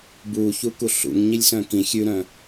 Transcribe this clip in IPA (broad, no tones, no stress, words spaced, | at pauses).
buçu kuɬṵŋɲilʲ sœ̃kĩ xʲʉɾœ̃